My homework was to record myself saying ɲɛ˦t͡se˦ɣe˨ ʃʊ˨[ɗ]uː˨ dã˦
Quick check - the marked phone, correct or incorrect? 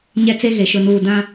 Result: incorrect